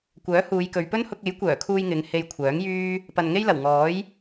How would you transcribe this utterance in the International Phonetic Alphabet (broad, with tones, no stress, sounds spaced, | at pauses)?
kʷ œː˨˥ h uː˨˧ j k ɵ˨˧ ɥ p ɵ˥ n h ʊ˧ k̚ e˨˥ j kʷ œː˨˩ kʰ uː˧ j ŋ ɪ˨˧ ŋ h e˧ j kʷʰ œː˨˥ ŋ j yː˥ | p ɐ˨ n ŋ e˥ j l ɐ˨˩ w ŋ ɔː˨˥ j